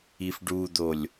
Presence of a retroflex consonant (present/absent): present